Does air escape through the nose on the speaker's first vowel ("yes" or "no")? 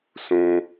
yes